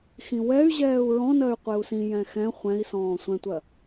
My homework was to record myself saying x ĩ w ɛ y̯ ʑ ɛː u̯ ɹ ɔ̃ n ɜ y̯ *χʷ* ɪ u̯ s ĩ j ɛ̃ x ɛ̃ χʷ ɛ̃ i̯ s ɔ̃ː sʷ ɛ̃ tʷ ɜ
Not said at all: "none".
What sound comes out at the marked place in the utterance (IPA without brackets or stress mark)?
qʷ